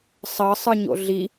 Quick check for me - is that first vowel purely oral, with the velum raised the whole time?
yes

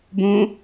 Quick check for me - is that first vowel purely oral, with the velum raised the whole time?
no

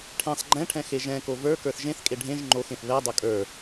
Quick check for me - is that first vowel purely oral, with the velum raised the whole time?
no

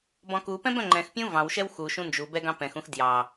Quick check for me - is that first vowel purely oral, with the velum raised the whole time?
no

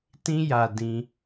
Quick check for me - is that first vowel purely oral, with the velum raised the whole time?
no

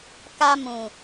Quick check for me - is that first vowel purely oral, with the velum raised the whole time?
yes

